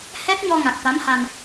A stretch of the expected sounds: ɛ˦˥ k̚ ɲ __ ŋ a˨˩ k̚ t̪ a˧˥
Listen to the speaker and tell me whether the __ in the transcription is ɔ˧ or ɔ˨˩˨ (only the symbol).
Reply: ɔ˧